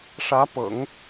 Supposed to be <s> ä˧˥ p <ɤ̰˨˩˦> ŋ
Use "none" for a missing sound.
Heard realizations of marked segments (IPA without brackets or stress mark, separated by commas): ʂ, ɤ̰˨˩˦